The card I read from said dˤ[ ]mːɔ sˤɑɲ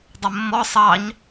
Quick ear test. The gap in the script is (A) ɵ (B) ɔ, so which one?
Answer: A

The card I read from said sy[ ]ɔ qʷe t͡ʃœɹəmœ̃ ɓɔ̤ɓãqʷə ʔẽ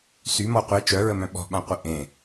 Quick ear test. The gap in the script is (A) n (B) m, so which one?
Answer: B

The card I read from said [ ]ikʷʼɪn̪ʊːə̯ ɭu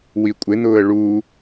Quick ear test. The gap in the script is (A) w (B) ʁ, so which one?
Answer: A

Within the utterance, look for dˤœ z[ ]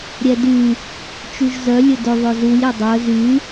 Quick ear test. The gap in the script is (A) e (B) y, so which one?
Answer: B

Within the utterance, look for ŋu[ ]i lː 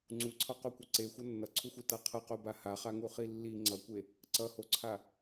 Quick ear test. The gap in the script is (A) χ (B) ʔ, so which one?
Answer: A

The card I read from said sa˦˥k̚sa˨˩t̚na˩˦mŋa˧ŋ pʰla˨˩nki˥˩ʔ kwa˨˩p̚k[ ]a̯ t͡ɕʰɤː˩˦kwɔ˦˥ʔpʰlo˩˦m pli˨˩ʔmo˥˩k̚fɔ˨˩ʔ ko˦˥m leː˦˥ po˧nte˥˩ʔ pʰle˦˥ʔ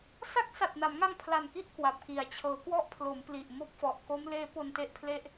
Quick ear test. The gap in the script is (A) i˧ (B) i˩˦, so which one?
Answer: B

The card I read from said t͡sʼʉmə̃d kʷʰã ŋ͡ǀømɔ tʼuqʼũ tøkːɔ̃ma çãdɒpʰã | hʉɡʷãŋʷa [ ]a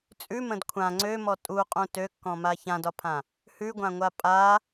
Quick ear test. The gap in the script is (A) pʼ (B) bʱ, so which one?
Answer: A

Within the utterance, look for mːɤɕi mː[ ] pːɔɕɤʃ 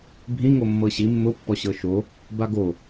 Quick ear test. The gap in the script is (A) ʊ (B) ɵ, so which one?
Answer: A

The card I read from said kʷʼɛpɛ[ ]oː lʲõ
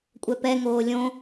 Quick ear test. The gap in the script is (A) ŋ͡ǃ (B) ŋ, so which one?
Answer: B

